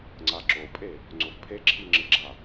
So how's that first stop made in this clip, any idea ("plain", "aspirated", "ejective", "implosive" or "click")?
click